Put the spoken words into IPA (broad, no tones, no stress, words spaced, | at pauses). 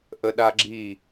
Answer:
ʔəɗaɡ͡ǁi